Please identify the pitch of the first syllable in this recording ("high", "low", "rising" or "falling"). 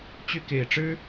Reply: falling